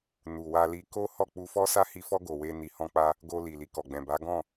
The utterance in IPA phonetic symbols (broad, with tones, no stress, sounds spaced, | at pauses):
n u˨ w a˧ l i˧ k o˦ h ɔ˦˨ k͡p u˧ f ɔ˦ s a˦ h i˧ f ɔ˦ ɡ o˧ w e˦ n i˧ h ɔ̃˦ k͡p a˦ | ɡ o˧ l i˨ l i˨ k ɔ˨ ɡ͡b ɛ̃˨ b a˨˦ ɡ ɔ̃˦˨